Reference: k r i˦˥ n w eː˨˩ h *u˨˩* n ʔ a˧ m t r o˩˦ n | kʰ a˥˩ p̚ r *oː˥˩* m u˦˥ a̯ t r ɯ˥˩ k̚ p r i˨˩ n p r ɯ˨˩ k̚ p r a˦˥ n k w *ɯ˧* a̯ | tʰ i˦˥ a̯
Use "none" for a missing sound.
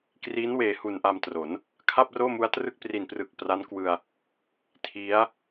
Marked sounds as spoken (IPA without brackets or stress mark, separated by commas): u˨˩, oː˥˩, ɯ˧